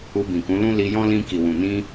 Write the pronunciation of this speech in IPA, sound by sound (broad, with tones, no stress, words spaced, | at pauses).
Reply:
u˧bĩ˨kũ˨˦lũ˦ li˧jɔ̃˦ lĩ˧ ki˨wũ˨ nĩ˧